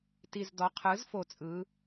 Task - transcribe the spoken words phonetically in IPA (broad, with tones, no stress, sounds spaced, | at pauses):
t i˨˩ z d ɔ˩˥ qʰ ɯ˩˥ z f o˨˩ t͡sʼ ɯ˩˧